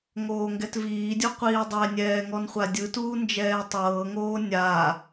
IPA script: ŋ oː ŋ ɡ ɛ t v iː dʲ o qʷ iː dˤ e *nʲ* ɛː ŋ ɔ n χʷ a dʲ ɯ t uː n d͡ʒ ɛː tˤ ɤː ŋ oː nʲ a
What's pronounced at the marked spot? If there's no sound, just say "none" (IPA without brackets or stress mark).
nʲ